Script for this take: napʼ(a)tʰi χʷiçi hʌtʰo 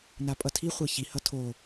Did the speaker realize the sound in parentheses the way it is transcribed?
no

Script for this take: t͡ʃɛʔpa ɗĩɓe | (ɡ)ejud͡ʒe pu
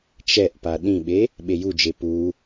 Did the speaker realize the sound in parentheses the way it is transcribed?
no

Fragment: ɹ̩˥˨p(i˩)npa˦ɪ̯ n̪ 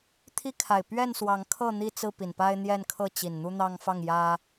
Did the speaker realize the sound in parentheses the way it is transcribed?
yes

